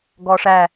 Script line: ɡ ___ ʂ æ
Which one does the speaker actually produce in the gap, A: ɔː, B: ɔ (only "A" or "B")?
A